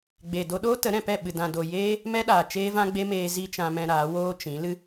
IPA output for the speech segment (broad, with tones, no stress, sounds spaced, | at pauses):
ɡ͡b e˨ d o˧ ɗ oː˦ t ə˨˦ ɾ ɛ̃˨ p ɛ˦˨ ɓ ɨ˨ d ã˨ d o˨ j eː˧ | m ɛ˦ ɗ aː˨ t͡ʃ eː˦ v ã˦ ɡ͡b e˦ m eː˧ z i˦ t͡ʃ ã˧ m ɛ̃˧ ɾ aː˨˦ w oː˦ t͡ʃ ĩ˨˦ l ɨ˦